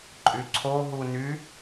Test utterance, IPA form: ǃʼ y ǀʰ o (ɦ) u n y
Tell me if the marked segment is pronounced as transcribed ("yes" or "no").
yes